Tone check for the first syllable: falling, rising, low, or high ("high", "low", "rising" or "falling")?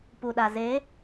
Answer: low